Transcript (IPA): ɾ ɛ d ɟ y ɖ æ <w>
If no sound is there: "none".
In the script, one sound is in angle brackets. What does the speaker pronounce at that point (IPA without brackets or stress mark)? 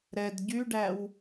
w